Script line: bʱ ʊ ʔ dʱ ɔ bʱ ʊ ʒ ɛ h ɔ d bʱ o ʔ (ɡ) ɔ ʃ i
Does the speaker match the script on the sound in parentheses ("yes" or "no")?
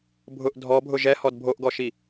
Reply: yes